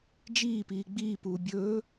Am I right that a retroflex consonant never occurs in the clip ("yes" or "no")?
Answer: yes